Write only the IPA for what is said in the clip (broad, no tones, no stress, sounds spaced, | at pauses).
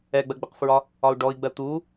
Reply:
ɛ ɡ͡b ɜ ɡ͡b ɪ q f ɹ ɒ | ɒ u̯ ɖ ɔ i̯ ɡ͡b ɜ t̪ u